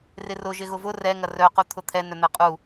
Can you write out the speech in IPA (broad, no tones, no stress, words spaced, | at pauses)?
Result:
rɪrʊ ʒɪɣʊvʊ rɛ ŋɐrœ qut̪ʰʊt̪ʰɛ nœn̪ɛqʼu